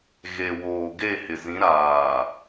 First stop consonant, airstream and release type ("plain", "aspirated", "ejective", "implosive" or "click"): plain